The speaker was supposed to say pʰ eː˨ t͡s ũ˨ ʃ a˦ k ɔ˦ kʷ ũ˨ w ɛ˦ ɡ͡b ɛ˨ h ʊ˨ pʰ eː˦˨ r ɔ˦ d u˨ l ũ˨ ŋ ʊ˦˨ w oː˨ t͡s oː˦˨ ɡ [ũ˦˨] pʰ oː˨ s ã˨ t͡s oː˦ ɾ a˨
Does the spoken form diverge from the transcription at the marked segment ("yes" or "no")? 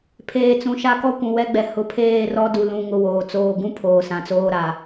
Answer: yes